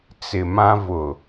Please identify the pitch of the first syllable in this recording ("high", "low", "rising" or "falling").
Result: low